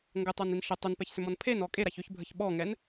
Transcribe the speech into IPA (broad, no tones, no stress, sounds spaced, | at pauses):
ŋ ɡ ə tˤ a n i n ʃ ə tˤ ʏ n p ɛ ç s ʏ m ɔ n pʰ e n ɔ kʼ e ɾ a ç ʏ ç bʱ ə ç ɓ ɔ ŋ ɛ n